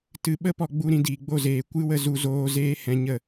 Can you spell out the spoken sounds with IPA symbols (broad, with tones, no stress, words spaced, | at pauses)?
tɨ˨ ɓə˦ pɔ˧ɡ͡bu˧ɾĩ˧ diː˨ɡ͡bo˦˨zeː˨ kʷɨ˦wə˧ zu˧zoː˦ zeː˦hɛ̃˧ɲə˦˨